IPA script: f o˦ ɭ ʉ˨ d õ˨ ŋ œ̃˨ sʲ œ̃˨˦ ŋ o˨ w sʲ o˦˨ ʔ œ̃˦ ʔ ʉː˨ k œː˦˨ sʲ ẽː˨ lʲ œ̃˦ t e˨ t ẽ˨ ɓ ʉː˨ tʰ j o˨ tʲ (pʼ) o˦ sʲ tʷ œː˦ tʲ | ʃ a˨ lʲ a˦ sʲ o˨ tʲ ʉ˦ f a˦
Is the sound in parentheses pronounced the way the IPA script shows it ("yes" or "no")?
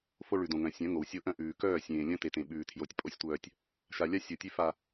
yes